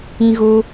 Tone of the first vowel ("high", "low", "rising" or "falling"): high